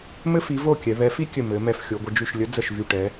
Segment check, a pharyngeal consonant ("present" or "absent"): absent